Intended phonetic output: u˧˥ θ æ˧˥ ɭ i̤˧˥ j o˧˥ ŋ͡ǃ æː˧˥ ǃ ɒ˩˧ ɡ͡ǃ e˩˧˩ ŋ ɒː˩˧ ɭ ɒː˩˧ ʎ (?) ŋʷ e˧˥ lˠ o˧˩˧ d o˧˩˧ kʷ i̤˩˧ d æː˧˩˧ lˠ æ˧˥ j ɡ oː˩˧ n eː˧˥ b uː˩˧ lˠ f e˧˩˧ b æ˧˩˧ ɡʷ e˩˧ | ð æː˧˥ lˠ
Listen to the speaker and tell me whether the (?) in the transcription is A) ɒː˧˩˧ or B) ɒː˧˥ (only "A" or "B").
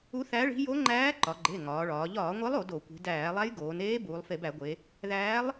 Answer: A